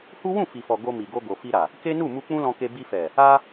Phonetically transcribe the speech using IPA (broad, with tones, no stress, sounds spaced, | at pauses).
h u˦ w ũ˦˨ f i˨ f ɔ˨ ɡ o˧ m i˨ ɡ o˧ ɡ o˨ f i˧ ɾ a˨ | k e˦ n u˦˨ m u˧ k͡p ũ˦ l ɔ̃˧ k e˧ b i˧ f ɛ˨ | a˦